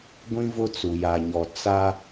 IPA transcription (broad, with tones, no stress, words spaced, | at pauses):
ɡʷĩ˦vʊ˦ t͡su˨ja˨ɲɔ˨ t͡sa˦